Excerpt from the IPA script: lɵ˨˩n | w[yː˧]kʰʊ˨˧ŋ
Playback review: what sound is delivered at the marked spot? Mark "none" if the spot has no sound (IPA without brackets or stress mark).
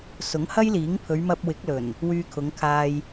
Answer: yː˧